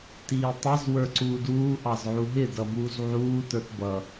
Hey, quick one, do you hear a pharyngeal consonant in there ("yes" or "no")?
yes